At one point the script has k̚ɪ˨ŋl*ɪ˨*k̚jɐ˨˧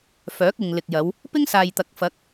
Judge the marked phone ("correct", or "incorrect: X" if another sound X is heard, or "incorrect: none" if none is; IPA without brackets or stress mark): correct